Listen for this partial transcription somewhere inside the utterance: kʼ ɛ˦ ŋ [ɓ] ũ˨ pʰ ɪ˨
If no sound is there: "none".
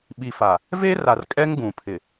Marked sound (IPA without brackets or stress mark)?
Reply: ɡ